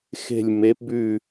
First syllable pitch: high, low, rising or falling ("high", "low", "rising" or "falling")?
falling